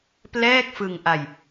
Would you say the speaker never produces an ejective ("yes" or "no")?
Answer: yes